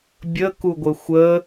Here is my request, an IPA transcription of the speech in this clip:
bʲ ə k u ɡʷ ɘ xʷ ə

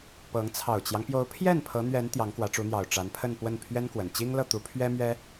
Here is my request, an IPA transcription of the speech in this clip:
p ɤ˧˥ ŋ t͡sʰ ɑ˨˩ ʊ̯ t͡ɕ j ɑ˦ ŋ p j o˧˥ ʊ̯ pʰ j ɛ˥˩ n pʰ ɤ˧˥ n̪ ɥ ɛ˧˥ n t̪ j ɑ˧˥ ŋ k w ä˧˥ ʈ͡ʂ u˧˥ n̪ j ɑ˨˩ ʊ̯ ʈ͡ʂ a˧˥ n pʰ ə˥˧ n p w ə˥˩ n pʰ ɥ ɛ˥ n k w ə˨˩ n t͡ɕ i˥ ŋ l ɤ˥˩ t̪ u˧˥ pʰ ɥ ɛ˥ m ɥ ɛ˥

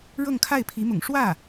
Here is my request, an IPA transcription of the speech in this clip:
ɻ ɤ˥˧ ŋ kʰ a˥˩ ɪ̯ pʰ i˧˥ m ʊ̰˨˩ ŋ ʂ w ä˥˩

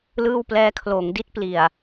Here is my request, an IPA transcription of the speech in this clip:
l ɯː˥˩ w p l ɛː˦˥ kʰ l oː˩˦ ŋ d i˦˥ t̚ p l i˨˩ a̯

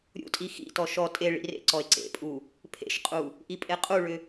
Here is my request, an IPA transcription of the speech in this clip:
ɾʲ ṵ tʼ i x ḭ t ɔ ʃ ɔ tʼ e ɭ ḭ r ḛ ǀ ɔ e̯ ǀ ḛ pʼ u | pʰ ḛ ʃ qʼ u | ʔ i pʼ e qʼ u ɭ ʏ

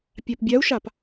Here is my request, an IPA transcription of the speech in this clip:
pʲ a p bʲ a u̯ ʃ a p

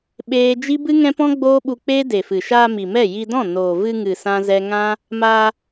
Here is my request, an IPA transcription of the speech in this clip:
ɓ eː˦ d͡ʒ i˦ b ɨ˦ ŋ ɛ̃˦ p ɔ̃˦ ɡ͡b oː˦ ɓ u˧ k͡p eː˦ d e˨ f ɨ˨ ʃ aː˧ m i˨ m ɛ˦˨ j i˧ d ɔ̃˦˨ n oː˨ v ɨ˧ ŋ ɨ˨ s ã˦ z ɛ˦ ŋ ã˦ | m aː˧

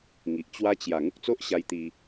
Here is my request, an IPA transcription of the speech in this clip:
ŋ i˨ ʔ t͡ɕ w a˧ t͡ɕ j a˨˩ ŋ u˦ k̚ t͡s o˦ ʔ ɕ a˧ j t̪ i˧

